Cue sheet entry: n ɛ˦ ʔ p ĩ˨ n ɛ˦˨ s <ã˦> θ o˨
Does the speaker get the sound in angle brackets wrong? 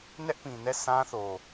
no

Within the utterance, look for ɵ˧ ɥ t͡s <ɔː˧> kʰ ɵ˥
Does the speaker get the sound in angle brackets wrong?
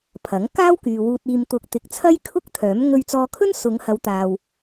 no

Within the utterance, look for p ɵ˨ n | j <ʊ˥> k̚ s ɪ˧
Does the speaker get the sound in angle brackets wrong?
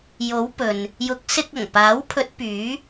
yes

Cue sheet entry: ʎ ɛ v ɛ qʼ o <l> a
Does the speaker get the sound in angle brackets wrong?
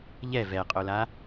no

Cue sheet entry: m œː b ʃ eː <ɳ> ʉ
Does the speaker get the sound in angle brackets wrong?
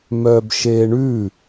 no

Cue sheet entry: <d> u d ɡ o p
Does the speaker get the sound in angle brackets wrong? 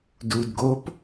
no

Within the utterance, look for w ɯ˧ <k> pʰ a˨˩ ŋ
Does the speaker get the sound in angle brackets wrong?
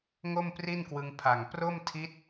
yes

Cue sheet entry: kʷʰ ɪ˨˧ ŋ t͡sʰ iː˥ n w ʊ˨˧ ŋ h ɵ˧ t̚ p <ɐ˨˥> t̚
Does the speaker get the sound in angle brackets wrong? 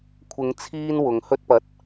no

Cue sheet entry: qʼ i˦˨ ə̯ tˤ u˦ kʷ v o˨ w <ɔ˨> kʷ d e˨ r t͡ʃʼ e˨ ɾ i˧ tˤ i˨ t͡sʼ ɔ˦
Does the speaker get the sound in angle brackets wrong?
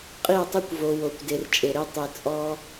yes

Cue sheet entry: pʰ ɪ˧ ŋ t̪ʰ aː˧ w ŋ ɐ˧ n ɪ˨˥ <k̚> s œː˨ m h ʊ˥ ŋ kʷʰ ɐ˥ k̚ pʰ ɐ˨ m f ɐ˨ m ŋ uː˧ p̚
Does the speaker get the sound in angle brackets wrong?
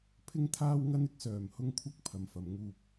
no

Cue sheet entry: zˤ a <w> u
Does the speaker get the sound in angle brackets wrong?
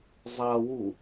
no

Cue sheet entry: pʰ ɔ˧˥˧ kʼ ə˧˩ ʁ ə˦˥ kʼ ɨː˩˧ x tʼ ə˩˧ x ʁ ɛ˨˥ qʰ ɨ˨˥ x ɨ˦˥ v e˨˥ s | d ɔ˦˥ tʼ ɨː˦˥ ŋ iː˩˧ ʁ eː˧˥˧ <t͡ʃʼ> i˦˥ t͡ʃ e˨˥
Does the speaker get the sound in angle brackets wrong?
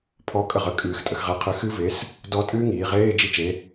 yes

